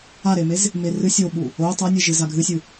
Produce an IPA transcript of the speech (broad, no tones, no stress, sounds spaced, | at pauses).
a ɾ e m e z | m e r ɨ sʲ o ɓ u | o tˤ a nʲ ɨ ʒ ɨ z a ɡʱ ɨ sʲ ɨ